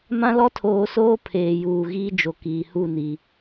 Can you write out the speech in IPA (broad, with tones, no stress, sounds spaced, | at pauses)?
m ã˦ l ɔ˦ tʰ oː˨˦ s oː˦ pʰ eː˨ j uː˨ ɣ iː˦ d͡ʒ o˨ k iː˨ h u˦˨ n iː˨